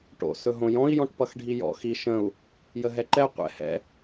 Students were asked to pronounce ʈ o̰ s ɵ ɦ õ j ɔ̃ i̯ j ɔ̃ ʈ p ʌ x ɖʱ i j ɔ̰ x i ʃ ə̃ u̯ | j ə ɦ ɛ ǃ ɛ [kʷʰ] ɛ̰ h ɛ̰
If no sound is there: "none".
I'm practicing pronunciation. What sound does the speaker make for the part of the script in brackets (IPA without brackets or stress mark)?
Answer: qʷ